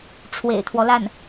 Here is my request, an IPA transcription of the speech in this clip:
ʈ͡ʂʰ w ḛ˨˩ ɪ̯ t̪ʰ w ɔ˦ l a˥˩ n

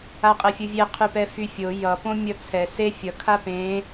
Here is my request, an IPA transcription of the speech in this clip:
a qʼ e fʲ ɯ vʲ e qʰ y p ɛ f y fʲ o j ʌ p õ mʲ ʌ t͡sʰ ɛ s e fʲ ʌ kʰ a p ẽ

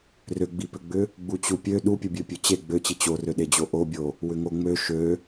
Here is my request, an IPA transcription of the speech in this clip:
r ʏ ɡ͡b i p ʏ ɡ͡b ʏ | ɡ͡b u t͡ɕ u pʲ ø ɗ u pʲ u bʲ ø pʲ ø t͡ɕ e ɡ͡b ø t͡ɕ i t͡ɕ o r ø ɗ e d͡ʑ o ʔ o bʲ o | w ʏ ŋ o ŋ͡m ø ʃ ø

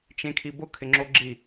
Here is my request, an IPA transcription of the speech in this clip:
t͡ʃ ẽ kʰ i b ʊ kʰ ɪ ŋ͡ǁ o ɡ͡ǁ i

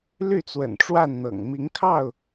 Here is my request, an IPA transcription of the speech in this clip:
l y˥˨ t͡s w ə̰˨˩ n ʈ͡ʂ w a˥˨ n n̪ ɤ̰˨˩ ŋ m i˨˦ ŋ kʰ ɑ˥˨ ʊ̯

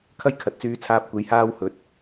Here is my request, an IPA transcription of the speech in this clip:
kʰ ɐ˥ j kʰ ɐ˨ t̚ t͡s yː˧ t͡sʰ aː˧ p̚ kʷ e˨˧ j h aː˧ w h ɵ˨˥ t̚

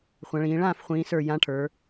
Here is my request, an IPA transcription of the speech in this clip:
χʷ ã˩˧ ɭ ĩː˩˧ ɭ ãː˥˨ f χʷ ĩː˩˧ s ə˞˧˩ j ã˨˥ ʈʰ ə˞˩˧

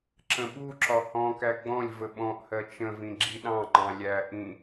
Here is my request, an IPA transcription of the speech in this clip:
ǁ ə̃ ɓ u ǁ ɒ h ɔ̃ k æ ɡ͡b ɔ̃ lʲ v ə ɓ ɔ̃ ʔ h ɜ t͡ʃ ə̃ v ĩ ɡ͡ǁ i ɗ ɑ̃ ŋ͡ǃ ɑ̃ lʲ æ ʔ ĩ

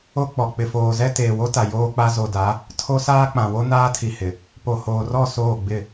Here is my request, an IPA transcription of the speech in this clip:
o˦ k͡p ɔ˨ k͡p ɪ˨ f oː˨ z ɛ˦ t eː˨ w o˦ t a˨ j oː˦ k͡p a˦ z o˨ d a˨˦ | tʰ o˦ s aː˦ k͡p ã˨ w o˦ n aː˦ tʰ i˨ h ɪ˨ | p o˨ h oː˨ r ɔ˦˨ s oː˦˨ ɡ͡b ɪ˦˨

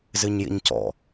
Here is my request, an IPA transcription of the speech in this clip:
z ɨ ɲ j ḭ ɲ c ɔ̰

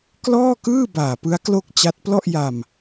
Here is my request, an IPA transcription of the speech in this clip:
k l ɔː˥˩ k ɯː˥˩ b aː˨˩ p ɯ˦˥ a̯ k l o˥˩ k̚ t͡ɕ a˦˥ t̚ p l ɔ˥˩ ʔ j a˧ m

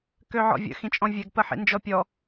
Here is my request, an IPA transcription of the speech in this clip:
k ø ʕ ɔ̰ vʲ ə̰ x ĩ t͡ʃʼ ɔ̃ vʲ ɛ ɡ p ə ħ ḭ n d͡ʒ ɔ pʲ ɔ

